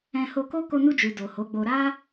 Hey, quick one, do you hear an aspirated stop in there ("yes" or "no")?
no